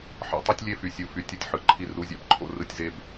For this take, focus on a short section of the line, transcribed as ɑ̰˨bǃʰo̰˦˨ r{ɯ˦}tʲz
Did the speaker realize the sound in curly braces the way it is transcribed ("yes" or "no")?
yes